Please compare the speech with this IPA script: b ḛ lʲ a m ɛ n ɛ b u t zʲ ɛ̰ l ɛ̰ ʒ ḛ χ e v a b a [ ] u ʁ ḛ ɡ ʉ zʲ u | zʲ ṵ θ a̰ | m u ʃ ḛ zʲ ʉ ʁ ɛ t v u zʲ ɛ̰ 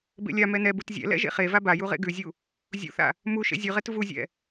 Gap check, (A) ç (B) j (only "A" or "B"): B